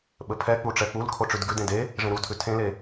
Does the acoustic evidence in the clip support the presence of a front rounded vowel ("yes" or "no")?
no